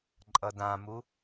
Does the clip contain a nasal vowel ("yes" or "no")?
yes